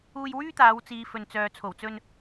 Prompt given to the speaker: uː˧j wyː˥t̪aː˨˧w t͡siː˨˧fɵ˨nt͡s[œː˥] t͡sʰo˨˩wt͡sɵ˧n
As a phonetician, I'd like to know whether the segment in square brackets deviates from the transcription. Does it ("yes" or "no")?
yes